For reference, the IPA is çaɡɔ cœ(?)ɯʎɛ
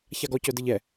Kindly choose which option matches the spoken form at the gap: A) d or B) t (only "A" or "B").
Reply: A